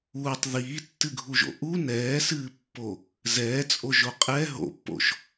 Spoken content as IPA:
uː tˤ ð iː tː ɨ ɡʱ u ʒ o̰ ʔ u n ɛː s ɨː pː o | z ɛː t͡sʼ o ʒ o qʼ ɛ ɦ o̰ pː o̰ ʃ

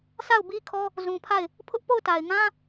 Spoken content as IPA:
sʰ a˦˨ ʊ̯ b i˦ kʰ ɔ˦ | z ũ˨ pʰ a˦˨ ɪ̯ | pʰ ʊ˦ ʔ p o˦˨ ʊ̯ t a˨ ɪ̯ ŋ ã˦

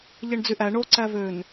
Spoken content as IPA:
ʎ e ɳ d͡z y ʔ æ ɳ o ǀ æ v ø n

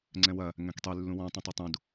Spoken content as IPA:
ŋ͡ǀ ɛ̃ w ɐ | ŋ ɛ̃ k tˤ y lː ũ w ɔ̃ tˤ ĩ tˤ e tˤ ũ d

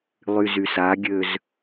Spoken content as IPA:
lˠ y z y s a ɡʲ ø z

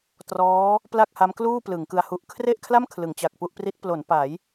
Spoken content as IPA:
t r ɔː˦˥ | p l a˥˩ k̚ h a˦˥ m k l uː˥˩ p l ɯ˩˦ ŋ k ɯ˧ a̯ h u˦˥ ʔ kʰ r e˥˩ ʔ kʰ l a˥˩ m kʰ l ɯ˩˦ ŋ t͡ɕ a˨˩ k̚ p u˥˩ ʔ p r i˦˥ t̚ p l o˩˦ n p a˩˦ j

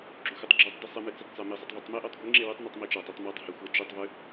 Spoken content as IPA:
ɡ͡ǁ u xʷ ɨ tˤ ɡ͡ǁ u tˤ d i sˤ ɨ m ɨ t͡s e tˤ t͡s a m i sˤ ɵ tˤ v o tˤ m e ʔ o tˤ ɡʷ i ŋ͡ǁ e w ʉ tˤ n u tˤ m i t͡ʃ a tˤ e tˤ m a tˤ h e xʷ ɐ d͡ʒ u tˤ v ʉ

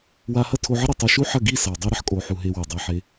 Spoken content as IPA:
w a˧ h ɐ˦ tʰ o˧ ʕ ɐ˦ ɾ o˧ tˤ ɛ˦˨ ʃ u˦ ħ ɐ˦˨ ɡ i˦˨ s a˨ w dˤ i˧ ɾ ɐ˧ ħ kʼ o˨ ħ u˨ ɦ e˧ w e˨ dˤ a˧ ħ e˧

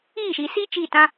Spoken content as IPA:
iː˦˨ ʃ i˨ s i˦ t͡ʃ i˦˨ t ã˦

